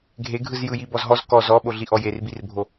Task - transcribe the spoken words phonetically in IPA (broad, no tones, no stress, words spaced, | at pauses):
ɡʱeɡʱɯz jɯjibɔzɦɔz kɔz ɔɓoɮiʔɔ jerbirbʱo